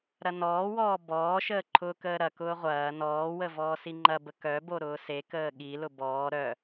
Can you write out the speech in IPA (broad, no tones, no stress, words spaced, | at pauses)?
ɾɐnɔːwɔː bɔːʃəː ǃʰʊːkəːɾɐkʊː ʁʷɐː nɔːwə vɔːsiŋ͡ǃɐbə kœbo ɾʊːsekəː ɠilʊ bɔː ɾœ